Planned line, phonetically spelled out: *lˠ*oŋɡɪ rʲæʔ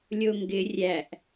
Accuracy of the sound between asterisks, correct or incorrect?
incorrect